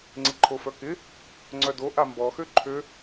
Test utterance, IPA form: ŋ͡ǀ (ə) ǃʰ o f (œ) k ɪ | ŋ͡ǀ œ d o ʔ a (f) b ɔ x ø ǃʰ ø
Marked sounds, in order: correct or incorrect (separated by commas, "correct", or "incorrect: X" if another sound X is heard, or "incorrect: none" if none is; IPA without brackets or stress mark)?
incorrect: ɪ, correct, incorrect: m